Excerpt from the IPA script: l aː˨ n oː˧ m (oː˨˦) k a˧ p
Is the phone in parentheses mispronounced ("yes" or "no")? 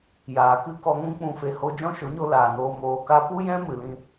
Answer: yes